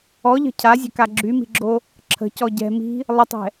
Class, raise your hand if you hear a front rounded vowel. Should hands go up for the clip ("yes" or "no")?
yes